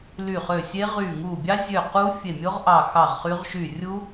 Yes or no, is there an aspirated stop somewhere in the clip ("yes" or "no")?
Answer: no